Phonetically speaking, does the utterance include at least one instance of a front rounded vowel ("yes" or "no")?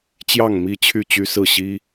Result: yes